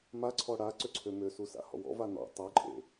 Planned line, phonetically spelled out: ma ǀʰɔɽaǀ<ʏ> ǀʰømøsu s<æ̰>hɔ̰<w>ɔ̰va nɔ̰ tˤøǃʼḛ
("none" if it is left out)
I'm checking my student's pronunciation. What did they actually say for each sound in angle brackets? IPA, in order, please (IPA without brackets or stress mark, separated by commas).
ʏ, a̰, w